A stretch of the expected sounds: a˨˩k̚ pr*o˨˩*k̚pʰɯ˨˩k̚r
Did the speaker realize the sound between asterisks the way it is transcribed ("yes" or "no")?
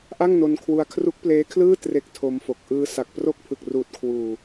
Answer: no